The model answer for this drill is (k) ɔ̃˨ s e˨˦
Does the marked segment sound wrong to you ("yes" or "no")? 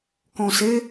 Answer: no